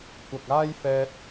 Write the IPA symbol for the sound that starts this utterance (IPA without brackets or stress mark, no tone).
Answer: kʷ